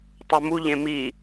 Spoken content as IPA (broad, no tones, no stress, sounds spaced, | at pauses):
tˤ u m u ʎ ẽ m i